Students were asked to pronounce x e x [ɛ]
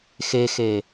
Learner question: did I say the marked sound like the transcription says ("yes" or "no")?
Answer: no